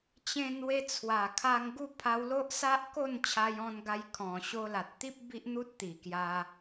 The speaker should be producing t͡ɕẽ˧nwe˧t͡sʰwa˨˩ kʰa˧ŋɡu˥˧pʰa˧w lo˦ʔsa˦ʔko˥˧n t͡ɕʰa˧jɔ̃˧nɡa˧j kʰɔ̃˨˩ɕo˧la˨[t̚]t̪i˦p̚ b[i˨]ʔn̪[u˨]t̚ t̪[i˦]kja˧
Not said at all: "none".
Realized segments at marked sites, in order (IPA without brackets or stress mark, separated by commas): t̚, i˦, u˦, i˨˩